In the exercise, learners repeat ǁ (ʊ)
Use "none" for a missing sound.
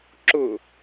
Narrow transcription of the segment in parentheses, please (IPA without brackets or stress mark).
ʊ